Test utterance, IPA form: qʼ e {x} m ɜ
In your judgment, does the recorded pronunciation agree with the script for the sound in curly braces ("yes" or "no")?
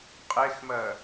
yes